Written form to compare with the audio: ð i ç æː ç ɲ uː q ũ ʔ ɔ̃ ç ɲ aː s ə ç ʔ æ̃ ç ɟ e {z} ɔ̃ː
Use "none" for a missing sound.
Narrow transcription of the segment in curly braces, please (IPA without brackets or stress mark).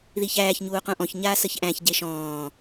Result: ʃ